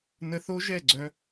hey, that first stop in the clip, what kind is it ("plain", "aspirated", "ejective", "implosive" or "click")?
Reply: click